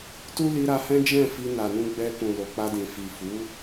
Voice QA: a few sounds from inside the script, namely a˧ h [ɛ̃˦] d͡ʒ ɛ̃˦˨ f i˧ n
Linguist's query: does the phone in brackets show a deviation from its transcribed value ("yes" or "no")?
no